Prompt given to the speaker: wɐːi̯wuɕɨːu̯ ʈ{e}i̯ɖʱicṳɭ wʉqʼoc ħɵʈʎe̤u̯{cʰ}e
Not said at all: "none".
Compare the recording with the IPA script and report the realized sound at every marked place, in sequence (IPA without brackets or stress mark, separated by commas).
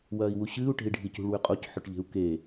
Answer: e̤, k